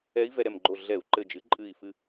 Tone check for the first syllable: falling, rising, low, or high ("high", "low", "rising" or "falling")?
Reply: rising